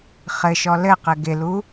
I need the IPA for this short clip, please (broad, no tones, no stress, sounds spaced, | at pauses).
χ ɘ ʃ ɔ l ɘ q ɘ ɡ ɪ l u